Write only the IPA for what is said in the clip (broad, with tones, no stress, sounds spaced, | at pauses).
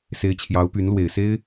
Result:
s e˧˥ ɪ̯ t͡ɕʰ j ɑ˧˥ ʊ̯ p y˧˥ n l w e˨˩ ɪ̯ s e˥ ɪ̯